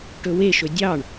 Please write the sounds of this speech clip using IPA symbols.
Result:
ʈ ɵ w e ʃ ɵ dʲ ɑ ɳ

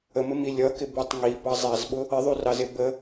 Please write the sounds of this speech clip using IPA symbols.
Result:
ə m ɪ m i lʲ ʌ k ɪ b u tˤ ŋ i b ɑ zˤ æ z ɓ ʊ | ɪ ðˤ u r ɑ z ɪ b ə

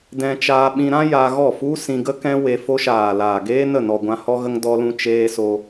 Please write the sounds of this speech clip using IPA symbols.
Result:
d ɛ̃˧ t͡ʃ aː˧ ɓ ĩ˧ ɾ ã˦ j a˧ ɣ ɔ˦˨ f u˦ s ĩ˧ ɡ ə˦ k ɛ̃˦ w e˧ f o˧ ʃ aː˨ l aː˨ ɡ eː˦ n ə˦˨ n ɔ˨ ɡʷ ã˧ h ɔ˧ ɣ ə˧ ŋ d ɔ˧ l ũ˧ t͡ʃ eː˧ s o˧

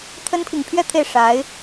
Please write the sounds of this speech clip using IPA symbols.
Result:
t̪ʰ ə˥ n pʰ i˨ ŋ pʰ ɥ ɛ˥˧ t̪ʰ e˥˩ ɪ̯ ʂ a˧˥ ɪ̯

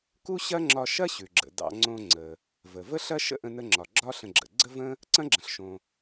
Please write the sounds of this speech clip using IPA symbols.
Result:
k u˥ ɕ ɐ˥ ŋ͡ǁ ɒ˧ ʃ ɐ˥ ɕ ʉ˩ ɡ͡ǁ ə̰˩ d ɑ̰˧ ŋ͡ǀ õ˧ ŋ͡ǀ ə˩ | v ə˩ v ə˥ ɬ ɐ˥ ʃ ə̰˥ ʔ ə̃˧ n ə˧ ŋ͡ǁ ɒ˩ ɡ͡ǁ ɒ˥ ɬ ə̃˧ ɡ͡ǁ ə̰˩ ɡ͡ǀ ə˥ v ə̃˥ | ǀ ɐ̃˥ ɡ͡ǁ ə̃˩ ɬ ʃ õ˩

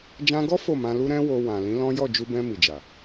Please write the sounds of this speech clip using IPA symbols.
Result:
d͡ʒ ã˧ ɡ ɔ˦ f o˦˨ m ã˧ l u˦ ɾ ɛ̃˦ w o˧ w ã˨ l ĩ˨˦ l ɔ̃˦ j ɔ˦˨ d͡ʒ u˧ b ɛ̃˧ m i˨ d͡ʒ a˨

